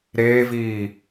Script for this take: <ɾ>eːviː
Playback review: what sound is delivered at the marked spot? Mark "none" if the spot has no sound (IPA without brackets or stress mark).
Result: ɾ